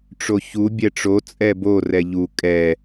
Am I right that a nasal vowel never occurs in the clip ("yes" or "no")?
yes